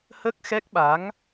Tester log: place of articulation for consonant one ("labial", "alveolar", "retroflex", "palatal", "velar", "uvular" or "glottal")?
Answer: glottal